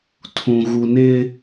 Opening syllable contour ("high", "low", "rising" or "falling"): low